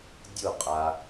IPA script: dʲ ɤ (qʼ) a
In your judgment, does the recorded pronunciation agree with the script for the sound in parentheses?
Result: yes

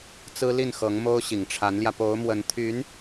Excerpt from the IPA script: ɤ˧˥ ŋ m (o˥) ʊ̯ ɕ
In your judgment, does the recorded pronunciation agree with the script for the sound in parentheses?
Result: yes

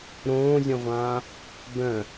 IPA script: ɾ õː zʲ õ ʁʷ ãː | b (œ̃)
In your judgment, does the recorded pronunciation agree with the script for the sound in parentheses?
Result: yes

